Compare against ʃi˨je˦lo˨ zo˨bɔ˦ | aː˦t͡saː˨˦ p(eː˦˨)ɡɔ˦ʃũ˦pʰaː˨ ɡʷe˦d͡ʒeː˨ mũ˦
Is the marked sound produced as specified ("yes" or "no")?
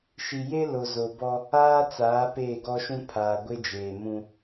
yes